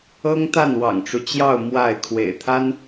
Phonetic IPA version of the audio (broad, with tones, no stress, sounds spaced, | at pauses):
ɤ˥ ŋ t̪ a˥˩ n w ɑ̰˨˩ ŋ ʈ͡ʂ u˦ t͡ɕ j ɑ˥˧ ʊ̯ m w a˥˩ ɪ̯ kʰ w ḛ˨˩ ɪ̯ t̪ʰ a˥ n